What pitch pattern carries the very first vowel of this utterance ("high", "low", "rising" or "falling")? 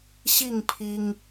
falling